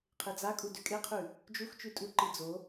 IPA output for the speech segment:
qʰ e d͡z a kʼ u d ʉ kʼ e qʰ ʉ | d͡ʒ u x t͡ʃ ʉ tʼ u ǃ i d͡z o

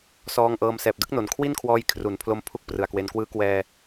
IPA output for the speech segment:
s ɔː˧ ŋ ʔ ɤː˧ m s ɛː˨˩ p̚ d ɯ˦˥ k̚ n o˨˩ n kʰ w i˥˩ n kʰ w ɔː˧ j kʰ r u˩˦ n pʰ l o˧ m pʰ u˦˥ k̚ p r ɯ˨˩ a̯ k w e˧ n k w ɯː˦˥ k w ɛː˧

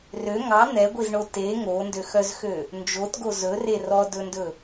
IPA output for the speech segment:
r ø ŋ ɑ n̪ ɛ ɡʷ i z ɳ o t e ŋ o n d ø x œ z x ø | n d͡ʒ o t ɡ o z ɵ r e r ɔ d ɵ n d ɵ

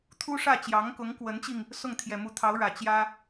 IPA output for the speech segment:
t̪ʰ u˥ ʂ ä˥˩ t͡ɕ j ɑ˧˥ ŋ k ʊ˧˥ ŋ k w ə˧˥ n t͡ɕ i˧ ŋ | s ʊ˥˩ ŋ t̪ʰ j ɛ˨˩ m u˧˥ t̪ʰ ɑ˧˥ ʊ̯ ɻ ä˨˩ t͡ɕ j ä˥

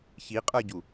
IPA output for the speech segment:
ç i qʼ ə˞ ɟ u

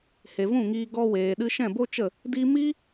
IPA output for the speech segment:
h e˨ v ũ˦˨ ŋ iː˧ ɡ ɔ˧ w eː˨ ɗ ɨ˧ ʃ ɛ̃˦˨ b o˦ t͡ʃ ə˦˨ | d i˧ m i˦

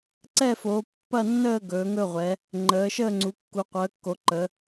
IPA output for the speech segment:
ǀ ɛ˥˧ f oː˨˦ pː ɐ˥˧ nː əː˥˧ ɡ ɵː˨˦ ŋ ɵ˥˧ ʁʷ ɛ˨˦ | ŋ͡ǃ əː˨˦ ʃ əː˥˧ ŋ͡ǀ u˨˦ kː u˨˦ qʷ əː˨˦ kː o˨˦ ǃ ə˨˦

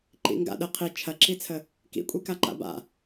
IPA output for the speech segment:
ǃ ḭ ŋ ɡ a̰ ɗ ə qʰ i t͡ʃʰ ɐ ǁ i t͡sʰ ə | k ḭ kʷʼ i k a ǃ a̰ b a̰

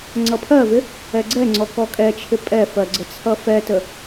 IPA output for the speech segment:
ŋ͡ǀ ʌ pʰ ɜ v ɪ | ɛ ɡ͡ǀ ɛ ŋ͡ǀ ɔ k ɔ kʼ ɛ t͡ʃʰ ɪ pʼ ɛ f ɜ ɡ͡ǀ ə t͡sʰ ʌ f ɛ t ə

